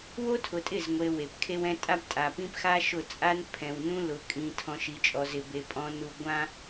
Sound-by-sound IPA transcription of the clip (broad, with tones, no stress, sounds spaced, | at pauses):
w o˦ tʰ ʊ˨ tʼ ɪ˦˨ z ŋʷ e˨ w e˨ p kʰ e˦ w ɛ̃˦ tʼ a˦ b tʼ a˨ p ĩ˦ p x a˦ ʃ ʊ˦˨ t͡sʼ a˦ n pʰ ɛ̃˨ w n ũ˦ l ʊ˨ kʼ ĩ˨ tʰ ɔ̃˨ ʃ i˨ t͡ʃʼ ɔ˨ z ɪ˨ b e˨ pʼ ɔ̃˨ n u˨ ɡʷ ã˦